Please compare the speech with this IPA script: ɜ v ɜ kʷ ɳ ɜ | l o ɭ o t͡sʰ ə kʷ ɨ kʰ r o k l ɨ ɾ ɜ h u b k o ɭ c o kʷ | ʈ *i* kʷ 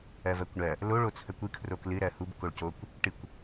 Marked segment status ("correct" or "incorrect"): incorrect